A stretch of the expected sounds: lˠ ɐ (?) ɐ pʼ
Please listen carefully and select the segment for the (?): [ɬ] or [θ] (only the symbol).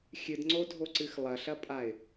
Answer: ɬ